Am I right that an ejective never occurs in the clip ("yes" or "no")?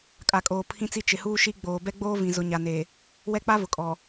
no